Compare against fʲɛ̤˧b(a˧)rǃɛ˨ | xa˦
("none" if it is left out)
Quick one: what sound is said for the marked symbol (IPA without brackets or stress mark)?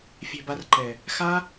a˧